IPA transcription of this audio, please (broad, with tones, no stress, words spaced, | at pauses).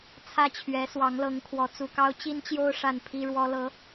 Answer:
t͡sʰä˥t͡ɕʰɥɛ˧˥ swɑ˧˥ŋlɤ˧˥ŋ kʰwɔ˧˥ t͡su˨˩kɑ˥ʊ̯ t͡ɕi˥nt͡ɕjo˥ʊ̯ ʂa˥˩npʰi˥ɻwɔ˥lɤ˧˥